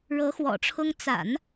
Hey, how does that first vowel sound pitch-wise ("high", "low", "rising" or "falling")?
rising